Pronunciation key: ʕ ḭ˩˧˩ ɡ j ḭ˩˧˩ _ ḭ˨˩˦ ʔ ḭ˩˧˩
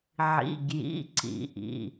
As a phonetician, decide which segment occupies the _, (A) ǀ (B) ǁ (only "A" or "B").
A